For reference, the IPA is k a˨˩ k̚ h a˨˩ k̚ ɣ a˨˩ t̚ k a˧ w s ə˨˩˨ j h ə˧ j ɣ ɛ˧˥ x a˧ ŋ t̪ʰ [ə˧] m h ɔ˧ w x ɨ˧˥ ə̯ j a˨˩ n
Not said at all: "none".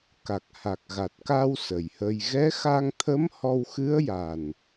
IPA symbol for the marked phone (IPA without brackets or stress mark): ə˧˥